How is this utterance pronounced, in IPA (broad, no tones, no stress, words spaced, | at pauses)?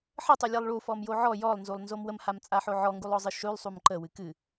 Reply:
ħətˤulʲɨlˠ ɭufɔmjo ʕɔ jɔlˠnzulˠnzom wəmhamt͡sʼaħo ʕɔŋɡulˠɔzˤɨ ʃʉlˠsˤum ǃəwɨ kɨ